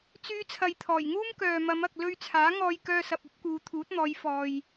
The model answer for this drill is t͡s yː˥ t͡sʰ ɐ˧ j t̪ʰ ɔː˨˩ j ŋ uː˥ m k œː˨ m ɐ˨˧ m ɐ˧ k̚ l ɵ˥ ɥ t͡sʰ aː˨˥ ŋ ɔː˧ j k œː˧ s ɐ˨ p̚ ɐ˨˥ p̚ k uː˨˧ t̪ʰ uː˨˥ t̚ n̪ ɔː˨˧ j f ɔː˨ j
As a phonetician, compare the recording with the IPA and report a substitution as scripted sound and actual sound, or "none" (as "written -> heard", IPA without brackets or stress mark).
none